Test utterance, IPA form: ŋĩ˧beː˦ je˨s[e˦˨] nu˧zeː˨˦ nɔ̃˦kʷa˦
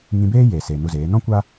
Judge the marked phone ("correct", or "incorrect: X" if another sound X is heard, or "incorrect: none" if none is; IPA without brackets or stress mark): incorrect: e˨